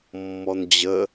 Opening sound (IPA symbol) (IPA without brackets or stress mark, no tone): mː